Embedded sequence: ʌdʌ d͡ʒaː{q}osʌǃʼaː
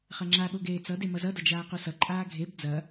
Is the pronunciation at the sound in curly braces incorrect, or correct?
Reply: correct